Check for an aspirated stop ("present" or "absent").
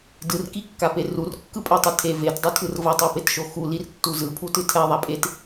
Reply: present